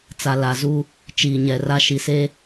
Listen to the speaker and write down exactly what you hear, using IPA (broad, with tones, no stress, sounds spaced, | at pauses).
t͡s a˨ l a˨ z u˦ | t͡ʃ iː˨ ɲ ɛ˨ r a˦ ʃ i˨ s e˦